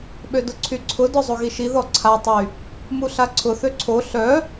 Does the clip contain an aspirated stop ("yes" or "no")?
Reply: yes